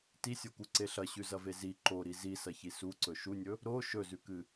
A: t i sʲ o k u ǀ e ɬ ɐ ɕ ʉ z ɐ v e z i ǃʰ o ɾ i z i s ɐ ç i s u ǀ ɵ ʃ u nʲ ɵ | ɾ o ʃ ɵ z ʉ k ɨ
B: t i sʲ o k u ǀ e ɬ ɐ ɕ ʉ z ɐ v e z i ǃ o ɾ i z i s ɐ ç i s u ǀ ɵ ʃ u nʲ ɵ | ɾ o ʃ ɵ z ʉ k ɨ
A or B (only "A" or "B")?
B